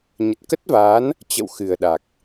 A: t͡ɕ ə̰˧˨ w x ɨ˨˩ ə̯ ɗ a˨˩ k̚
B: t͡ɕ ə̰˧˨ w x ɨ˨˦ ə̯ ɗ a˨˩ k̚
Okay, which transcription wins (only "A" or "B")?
A